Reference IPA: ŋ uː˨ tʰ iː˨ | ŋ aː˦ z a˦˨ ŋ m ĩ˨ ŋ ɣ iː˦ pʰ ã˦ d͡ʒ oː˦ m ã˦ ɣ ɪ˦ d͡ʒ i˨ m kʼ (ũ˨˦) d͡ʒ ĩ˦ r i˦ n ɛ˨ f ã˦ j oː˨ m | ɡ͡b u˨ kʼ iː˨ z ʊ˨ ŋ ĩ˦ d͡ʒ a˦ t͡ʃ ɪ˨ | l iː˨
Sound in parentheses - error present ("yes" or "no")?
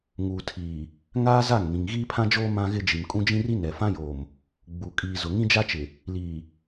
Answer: yes